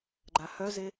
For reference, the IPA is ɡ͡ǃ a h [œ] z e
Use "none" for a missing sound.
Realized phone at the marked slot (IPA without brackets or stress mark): œ